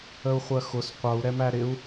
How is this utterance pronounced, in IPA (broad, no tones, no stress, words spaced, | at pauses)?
əu̯χʷɜxʊs qʷʌu̯ ɾɛmæɾɪu̯